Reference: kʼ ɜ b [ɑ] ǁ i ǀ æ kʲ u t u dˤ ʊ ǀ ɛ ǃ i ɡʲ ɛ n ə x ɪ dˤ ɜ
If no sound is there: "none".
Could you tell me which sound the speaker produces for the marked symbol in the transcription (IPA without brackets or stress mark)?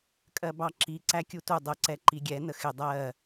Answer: ɑ